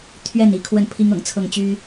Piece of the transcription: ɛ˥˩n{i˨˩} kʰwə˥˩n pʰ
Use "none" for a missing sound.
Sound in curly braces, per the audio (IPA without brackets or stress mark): i˧˥